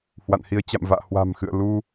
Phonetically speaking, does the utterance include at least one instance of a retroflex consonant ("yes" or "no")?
no